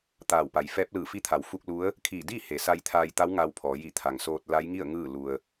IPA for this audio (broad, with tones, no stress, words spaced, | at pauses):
t̪aː˧˩w pa˩˧jfɛː˧˥p̚lɯː˧˩ fi˧˥t̪ʰa˩˧w fu˧k̚lu˧˥ə̯ | kʰiː˧˩diː˥˨ he˩˧ sa˧jt̪ʰaː˧jt̪a˧˥w ŋa˧wpʰɔː˩˧ ji˧˩ t̪ʰa˩ŋ soː˧t̚ la˧˥jŋi˥˨ə̯ ŋɯː˥˨ lu˧ə̯